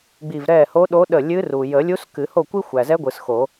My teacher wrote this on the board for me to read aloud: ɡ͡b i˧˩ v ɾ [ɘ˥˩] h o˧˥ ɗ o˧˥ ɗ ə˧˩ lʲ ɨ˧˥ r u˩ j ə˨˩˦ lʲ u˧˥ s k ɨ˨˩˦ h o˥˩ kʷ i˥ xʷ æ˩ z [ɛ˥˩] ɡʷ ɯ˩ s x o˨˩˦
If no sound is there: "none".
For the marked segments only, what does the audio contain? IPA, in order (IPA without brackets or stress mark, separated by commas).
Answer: ɛ˥˩, ɛ˧˥